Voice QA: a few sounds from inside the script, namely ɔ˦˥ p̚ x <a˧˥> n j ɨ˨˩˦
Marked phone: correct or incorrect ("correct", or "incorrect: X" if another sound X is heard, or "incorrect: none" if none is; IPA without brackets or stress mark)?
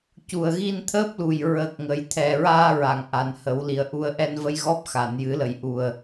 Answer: incorrect: a˨˩˨